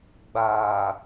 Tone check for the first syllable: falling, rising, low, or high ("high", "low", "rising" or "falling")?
low